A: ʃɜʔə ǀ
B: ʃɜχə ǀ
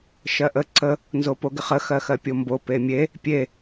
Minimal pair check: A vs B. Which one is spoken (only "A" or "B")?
A